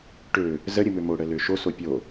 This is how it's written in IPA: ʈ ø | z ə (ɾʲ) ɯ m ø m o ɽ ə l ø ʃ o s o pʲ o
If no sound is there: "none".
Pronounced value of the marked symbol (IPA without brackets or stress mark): ɾʲ